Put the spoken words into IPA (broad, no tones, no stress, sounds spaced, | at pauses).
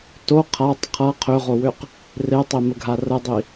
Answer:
t o qʰ a tˤ qʰ ʌ qʰ ø ʁ o w ø q | r e tˤ e m ə ɡʱ a r ə dˤ i